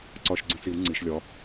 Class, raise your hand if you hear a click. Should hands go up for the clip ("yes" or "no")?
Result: yes